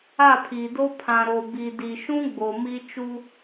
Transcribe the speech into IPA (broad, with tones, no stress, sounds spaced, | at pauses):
a˦˨ pʰ i˨ d o˦ pʰ ã˨ ɾ o˨ b i˨ d i˨ ʃ ũ˦ ɡ͡b o˨ m i˦ t͡ʃ u˦